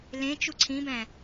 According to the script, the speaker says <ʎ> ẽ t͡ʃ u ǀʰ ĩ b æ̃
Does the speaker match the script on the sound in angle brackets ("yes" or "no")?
no